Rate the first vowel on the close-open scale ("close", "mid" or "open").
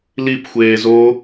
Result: close